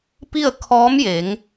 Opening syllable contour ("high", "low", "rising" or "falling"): falling